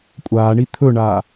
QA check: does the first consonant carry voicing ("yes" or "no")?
no